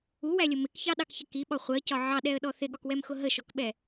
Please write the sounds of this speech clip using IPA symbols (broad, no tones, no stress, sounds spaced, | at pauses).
u w æ lʲ ʊ m ɪ k ç ɑ ɗ ɑ k ç ə k i ɓ ɒ χʷ ɜ c ɒ ʕ ɑ ɗ ɛ ə̯ ɗ ɔ θ ɪ ɠ ɒ k w ɛ m x ʊ ɦ ə ʃ ɔ k ɓ ɛ